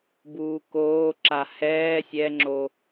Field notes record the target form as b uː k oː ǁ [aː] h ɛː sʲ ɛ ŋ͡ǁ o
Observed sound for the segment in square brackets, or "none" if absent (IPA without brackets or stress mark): a